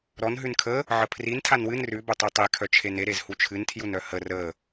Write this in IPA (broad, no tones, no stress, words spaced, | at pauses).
ɾɔn ɦʉnkʰə | ʕəpʰrin tʰanwɨn rʉ bœtˤitˤe kʰœt͡ʃʰene ɾezhut͡ʃʰɨn tʰjunœhə rə